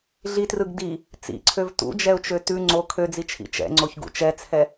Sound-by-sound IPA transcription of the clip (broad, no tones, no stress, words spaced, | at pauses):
ɮitrɯɡ di | t͡sḭǀʰøv tṵd͡ʒɛʊ̯t͡ʃø tʉ ŋ͡ǀo kʰød͡zit͡ʃʰḭ t͡ʃɛ̰ŋ͡ǀoçɡṵ t͡ʃɛt͡sʰɛ